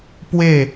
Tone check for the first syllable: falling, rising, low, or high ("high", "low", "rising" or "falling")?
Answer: falling